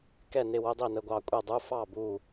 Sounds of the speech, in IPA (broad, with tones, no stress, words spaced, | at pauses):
kɛ˥˩nɪ˥˩wʊ˧˥˧dˤi˥˩ nə˧˥˧ɡʷɑ˥˩ kʷʼɛ˥˩dˤu˧˥˧ fɑ˥˩ bu˥˩